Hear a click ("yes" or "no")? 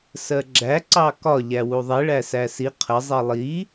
yes